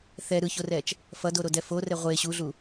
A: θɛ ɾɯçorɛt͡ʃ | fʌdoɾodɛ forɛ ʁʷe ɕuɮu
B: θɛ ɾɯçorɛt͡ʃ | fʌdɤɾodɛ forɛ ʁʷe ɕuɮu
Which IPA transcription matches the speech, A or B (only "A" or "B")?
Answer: A